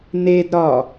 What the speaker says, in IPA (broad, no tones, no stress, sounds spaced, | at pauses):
n e d ɾ ɒ